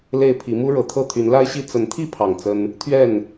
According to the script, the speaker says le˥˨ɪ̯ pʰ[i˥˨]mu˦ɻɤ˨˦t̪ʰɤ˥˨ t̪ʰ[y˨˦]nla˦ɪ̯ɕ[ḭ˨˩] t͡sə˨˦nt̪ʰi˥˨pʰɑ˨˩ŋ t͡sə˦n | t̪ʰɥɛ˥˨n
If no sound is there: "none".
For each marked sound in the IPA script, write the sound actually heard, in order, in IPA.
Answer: i˨˦, y˨˦, i˥˨

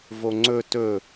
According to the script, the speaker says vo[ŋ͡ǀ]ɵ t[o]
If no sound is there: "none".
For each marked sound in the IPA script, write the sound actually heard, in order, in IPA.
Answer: ŋ͡ǀ, ɵ

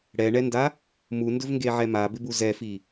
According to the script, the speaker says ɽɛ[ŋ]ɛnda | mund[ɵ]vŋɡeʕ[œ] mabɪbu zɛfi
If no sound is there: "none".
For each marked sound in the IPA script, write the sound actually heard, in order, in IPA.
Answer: ɳ, ɵ, ɛ

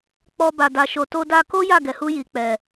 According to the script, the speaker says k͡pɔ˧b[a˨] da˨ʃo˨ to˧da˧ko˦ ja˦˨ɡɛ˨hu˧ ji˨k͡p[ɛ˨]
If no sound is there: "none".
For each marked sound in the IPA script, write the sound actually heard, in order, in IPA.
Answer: a˨, ɛ˨

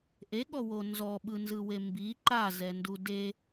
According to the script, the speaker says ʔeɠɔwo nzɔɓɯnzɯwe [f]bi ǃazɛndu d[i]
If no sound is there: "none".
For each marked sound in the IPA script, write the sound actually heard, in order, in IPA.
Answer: m, e

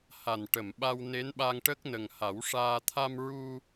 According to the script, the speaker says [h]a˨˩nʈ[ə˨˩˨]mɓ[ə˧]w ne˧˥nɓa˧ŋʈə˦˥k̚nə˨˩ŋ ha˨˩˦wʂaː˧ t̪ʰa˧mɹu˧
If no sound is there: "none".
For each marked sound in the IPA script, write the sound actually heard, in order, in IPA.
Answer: h, ə˨˩˨, a˧

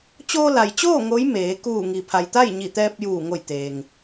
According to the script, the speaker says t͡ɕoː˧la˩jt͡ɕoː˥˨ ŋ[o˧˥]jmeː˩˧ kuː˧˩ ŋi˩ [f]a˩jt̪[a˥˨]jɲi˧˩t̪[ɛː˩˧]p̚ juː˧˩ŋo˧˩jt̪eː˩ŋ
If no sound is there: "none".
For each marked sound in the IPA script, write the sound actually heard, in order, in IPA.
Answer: o˧˥, pʰ, a˥˨, ɛː˧

